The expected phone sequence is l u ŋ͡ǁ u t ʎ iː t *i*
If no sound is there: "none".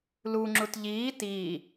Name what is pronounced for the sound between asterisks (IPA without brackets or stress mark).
iː